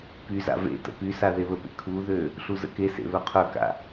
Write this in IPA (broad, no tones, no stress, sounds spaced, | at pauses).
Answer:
p y z a̰ v ḛ t ə̰ p y s a ð e β ə p ḛ kʰ u ð ø | ɬ u z ə̰ k e s ḛ β œ qʰ œ k a̰